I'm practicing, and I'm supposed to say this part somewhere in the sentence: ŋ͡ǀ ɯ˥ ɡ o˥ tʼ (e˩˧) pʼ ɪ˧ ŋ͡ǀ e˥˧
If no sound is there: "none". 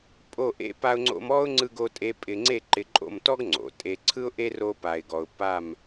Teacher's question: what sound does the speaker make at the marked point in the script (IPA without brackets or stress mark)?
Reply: e˥